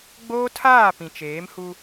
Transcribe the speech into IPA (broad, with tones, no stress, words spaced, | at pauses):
ɡ͡boː˦tʰaː˦˨ pĩ˨t͡ʃeː˨˦mhu˦